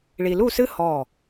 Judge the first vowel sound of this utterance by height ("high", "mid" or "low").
high